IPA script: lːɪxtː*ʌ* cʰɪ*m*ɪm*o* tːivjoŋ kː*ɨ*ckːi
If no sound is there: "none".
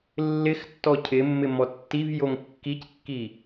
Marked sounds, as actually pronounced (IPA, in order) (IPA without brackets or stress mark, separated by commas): ɔ, mː, ɔ, i